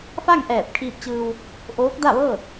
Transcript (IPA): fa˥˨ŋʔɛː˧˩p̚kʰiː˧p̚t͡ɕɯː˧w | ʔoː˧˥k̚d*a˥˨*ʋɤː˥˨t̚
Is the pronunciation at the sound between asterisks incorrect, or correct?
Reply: correct